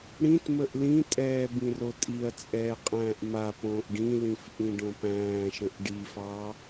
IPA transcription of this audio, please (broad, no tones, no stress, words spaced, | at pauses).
ɽĩtməʔ lĩtʼɛː bĩrotʼiɐ̯t͡sʼɛː qʼæ̃ːʔmapõːʔ ɖĩlĩf ʔĩɖõpæ̃ːʃə̃ʔ ɖifɑː